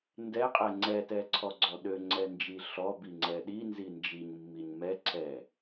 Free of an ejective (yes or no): no